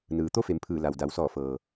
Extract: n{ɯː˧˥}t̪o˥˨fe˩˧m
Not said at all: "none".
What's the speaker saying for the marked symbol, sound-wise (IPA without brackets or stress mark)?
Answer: ɯː˩